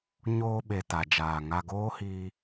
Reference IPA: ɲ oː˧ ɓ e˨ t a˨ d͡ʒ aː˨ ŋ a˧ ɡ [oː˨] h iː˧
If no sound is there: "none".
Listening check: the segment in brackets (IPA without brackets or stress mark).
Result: oː˦